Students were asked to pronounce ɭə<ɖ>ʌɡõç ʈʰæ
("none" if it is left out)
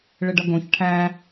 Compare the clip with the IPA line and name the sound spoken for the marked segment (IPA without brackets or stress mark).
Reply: ɖ